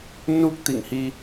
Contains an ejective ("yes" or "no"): no